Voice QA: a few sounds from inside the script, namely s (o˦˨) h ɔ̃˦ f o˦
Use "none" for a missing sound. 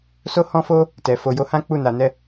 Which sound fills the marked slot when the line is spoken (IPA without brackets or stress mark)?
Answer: o˦